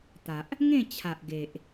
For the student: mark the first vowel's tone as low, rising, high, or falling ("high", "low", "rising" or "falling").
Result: low